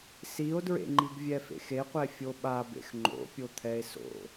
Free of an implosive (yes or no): no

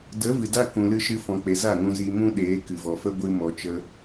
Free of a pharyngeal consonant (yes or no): yes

